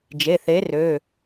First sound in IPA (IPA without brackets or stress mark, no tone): d͡ʒ